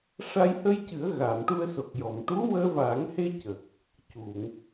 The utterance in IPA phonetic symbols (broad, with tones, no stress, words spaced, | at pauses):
ʂa˧j hə˧jcɨ˨˩˦ə̯ ɣa˨˩˨mʈu˧ə̯so˨˩k̚ jɔ˨˩˨m ʈu˧˥wəː˧vaː˨˩˦ŋhe˧ cə˨˩k̚ | cu˨˩˨ŋ